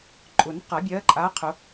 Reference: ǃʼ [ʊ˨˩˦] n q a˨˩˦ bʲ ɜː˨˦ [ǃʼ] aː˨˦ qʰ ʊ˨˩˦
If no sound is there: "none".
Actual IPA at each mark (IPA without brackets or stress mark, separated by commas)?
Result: ʊ˨˩˦, ǃʼ